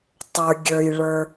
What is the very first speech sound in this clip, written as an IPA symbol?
tˤ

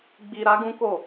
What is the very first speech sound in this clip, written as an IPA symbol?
ɡ͡b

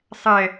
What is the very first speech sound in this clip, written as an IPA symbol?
sˤ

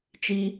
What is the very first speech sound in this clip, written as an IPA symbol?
t͡ʃ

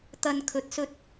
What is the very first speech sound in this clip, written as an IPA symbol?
t̪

